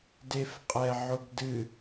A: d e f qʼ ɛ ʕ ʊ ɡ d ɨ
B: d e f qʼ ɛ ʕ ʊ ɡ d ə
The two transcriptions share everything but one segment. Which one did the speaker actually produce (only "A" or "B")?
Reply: A